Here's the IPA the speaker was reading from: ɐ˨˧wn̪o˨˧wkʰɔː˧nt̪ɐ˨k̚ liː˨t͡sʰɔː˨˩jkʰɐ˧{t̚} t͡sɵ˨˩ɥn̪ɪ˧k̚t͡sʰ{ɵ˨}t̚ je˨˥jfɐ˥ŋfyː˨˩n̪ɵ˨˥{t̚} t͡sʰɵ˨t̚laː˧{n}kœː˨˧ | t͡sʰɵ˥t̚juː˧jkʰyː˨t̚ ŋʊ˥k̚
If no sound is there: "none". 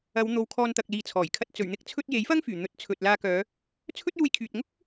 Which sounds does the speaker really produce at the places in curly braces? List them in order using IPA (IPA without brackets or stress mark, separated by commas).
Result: t̚, ɵ˧, t̚, none